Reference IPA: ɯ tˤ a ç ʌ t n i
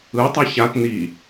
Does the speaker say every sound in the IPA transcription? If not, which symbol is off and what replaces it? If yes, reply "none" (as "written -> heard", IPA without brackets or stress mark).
ʌ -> a